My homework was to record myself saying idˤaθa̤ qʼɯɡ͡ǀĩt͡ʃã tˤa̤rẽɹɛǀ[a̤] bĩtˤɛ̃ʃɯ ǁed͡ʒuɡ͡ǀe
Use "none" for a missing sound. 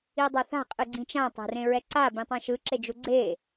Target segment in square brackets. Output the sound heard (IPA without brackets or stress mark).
a